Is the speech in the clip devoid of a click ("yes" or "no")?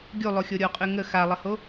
yes